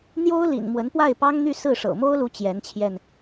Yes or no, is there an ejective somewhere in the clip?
no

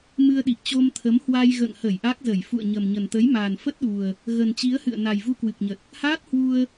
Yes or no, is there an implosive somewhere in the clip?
yes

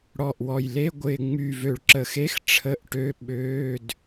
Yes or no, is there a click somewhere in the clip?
yes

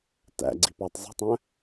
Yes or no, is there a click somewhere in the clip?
yes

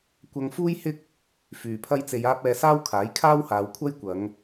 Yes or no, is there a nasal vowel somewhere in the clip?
no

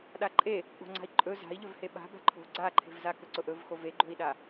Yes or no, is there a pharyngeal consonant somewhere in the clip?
no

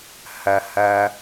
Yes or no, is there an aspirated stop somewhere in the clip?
no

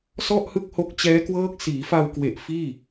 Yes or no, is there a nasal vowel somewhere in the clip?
no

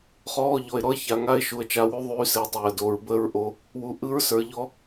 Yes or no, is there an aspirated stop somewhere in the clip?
no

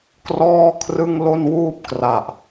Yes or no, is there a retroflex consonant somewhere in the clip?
no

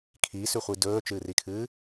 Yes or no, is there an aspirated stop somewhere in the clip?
yes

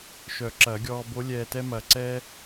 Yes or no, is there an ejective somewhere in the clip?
no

